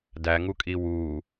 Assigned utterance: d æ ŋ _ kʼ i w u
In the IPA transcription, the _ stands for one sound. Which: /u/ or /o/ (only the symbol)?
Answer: u